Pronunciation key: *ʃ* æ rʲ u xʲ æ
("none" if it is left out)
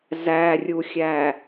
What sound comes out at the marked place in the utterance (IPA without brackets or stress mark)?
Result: z